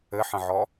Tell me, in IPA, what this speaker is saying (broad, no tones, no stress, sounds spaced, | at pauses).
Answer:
ɘ ħ ə̃ ʕ ɔ